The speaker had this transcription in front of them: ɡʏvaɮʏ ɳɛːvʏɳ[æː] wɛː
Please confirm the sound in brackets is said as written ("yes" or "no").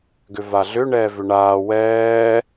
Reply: no